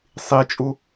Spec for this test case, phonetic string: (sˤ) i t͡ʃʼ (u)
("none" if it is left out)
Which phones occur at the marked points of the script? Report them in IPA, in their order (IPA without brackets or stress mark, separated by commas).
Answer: sˤ, u